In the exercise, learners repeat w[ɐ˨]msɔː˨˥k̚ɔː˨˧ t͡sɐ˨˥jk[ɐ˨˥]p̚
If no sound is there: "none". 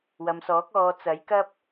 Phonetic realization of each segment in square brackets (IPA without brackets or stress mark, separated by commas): ɐ˨, ɐ˥